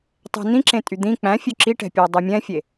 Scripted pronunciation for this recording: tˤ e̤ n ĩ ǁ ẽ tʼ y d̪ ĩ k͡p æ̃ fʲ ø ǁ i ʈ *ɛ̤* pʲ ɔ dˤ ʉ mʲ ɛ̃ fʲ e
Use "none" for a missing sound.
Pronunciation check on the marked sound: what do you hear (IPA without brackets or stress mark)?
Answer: ɛ̤